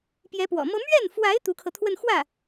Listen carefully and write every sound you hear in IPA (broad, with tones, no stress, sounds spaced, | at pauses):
p j ɛ˧˥ p w ɔ̰˨˩ m ɤ˥ m ɥ ɛ˥˩ n f w a˧˥ ɪ̯ t̪ u˧˥ kʰ ɤ˧ t̪ʰ w ə˥˧ n x w ä˥˩